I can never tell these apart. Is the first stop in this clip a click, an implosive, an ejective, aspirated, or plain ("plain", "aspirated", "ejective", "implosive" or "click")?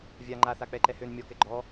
click